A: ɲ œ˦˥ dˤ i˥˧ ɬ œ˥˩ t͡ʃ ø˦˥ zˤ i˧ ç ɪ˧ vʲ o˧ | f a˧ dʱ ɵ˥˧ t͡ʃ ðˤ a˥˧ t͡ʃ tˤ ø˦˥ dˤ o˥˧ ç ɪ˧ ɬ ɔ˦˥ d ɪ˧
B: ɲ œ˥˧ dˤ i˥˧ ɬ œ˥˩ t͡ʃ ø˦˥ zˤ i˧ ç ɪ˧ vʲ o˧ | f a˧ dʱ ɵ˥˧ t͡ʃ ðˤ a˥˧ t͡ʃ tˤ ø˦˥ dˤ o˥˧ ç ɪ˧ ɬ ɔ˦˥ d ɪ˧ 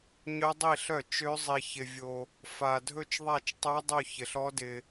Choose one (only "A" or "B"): A